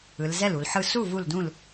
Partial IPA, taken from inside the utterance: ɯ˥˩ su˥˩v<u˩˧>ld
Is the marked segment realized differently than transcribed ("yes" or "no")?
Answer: yes